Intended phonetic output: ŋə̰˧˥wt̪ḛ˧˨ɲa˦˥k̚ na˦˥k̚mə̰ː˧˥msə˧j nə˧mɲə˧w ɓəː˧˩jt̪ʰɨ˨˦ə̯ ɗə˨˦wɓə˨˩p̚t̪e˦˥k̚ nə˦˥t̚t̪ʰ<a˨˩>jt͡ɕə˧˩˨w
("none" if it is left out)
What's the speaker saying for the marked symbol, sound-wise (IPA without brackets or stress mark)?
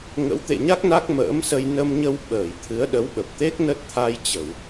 a˧